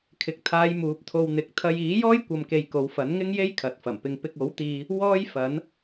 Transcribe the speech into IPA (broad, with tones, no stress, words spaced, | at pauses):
kʰɪ˨k̚ t̪ʰaː˨˧j muː˨˥p̚ t̪ʰo˧wn̪ɪ˨˥k̚ t̪ʰɐ˧j iː˨˥jɔː˥jkʷɐ˨mke˨j ko˨˧wfɐ˨˥nŋɪ˥ŋje˥j kʰɐ˨t̚fɐ˨˩mpɪ˧ŋ pɪ˧k̚o˨˥wt̪iː˧ | wɔː˥jfɐ˨˥n